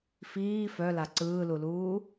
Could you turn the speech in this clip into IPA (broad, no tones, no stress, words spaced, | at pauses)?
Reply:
fiː fœla ǀɯːluluː